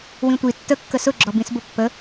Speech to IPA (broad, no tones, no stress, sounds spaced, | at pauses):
w ĩ tʷ i tː ə kː ə s ʊ ɡ͡ǁ ɔ b ĩ s b ʊ pː ə